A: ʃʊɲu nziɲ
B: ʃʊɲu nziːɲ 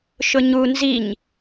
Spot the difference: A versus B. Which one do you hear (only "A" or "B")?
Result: A